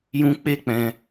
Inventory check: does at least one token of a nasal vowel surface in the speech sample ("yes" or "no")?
yes